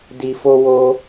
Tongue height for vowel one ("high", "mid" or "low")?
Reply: high